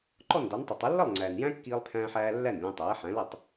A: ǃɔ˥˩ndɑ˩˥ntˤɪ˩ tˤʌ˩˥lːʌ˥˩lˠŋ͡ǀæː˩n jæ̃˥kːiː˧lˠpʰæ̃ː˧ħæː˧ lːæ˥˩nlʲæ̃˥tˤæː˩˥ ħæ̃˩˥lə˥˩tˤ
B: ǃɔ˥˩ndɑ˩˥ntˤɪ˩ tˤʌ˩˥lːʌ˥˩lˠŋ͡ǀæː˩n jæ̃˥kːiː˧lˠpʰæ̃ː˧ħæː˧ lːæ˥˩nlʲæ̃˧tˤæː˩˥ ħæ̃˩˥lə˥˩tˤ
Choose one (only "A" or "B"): B